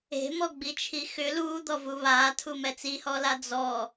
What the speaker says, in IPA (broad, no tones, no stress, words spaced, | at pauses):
e̤mɔɡ͡bit͡ʃʰi xʏ luːd̪ɔvu βaːtʰumɛ t͡sihɔla d͡zɔ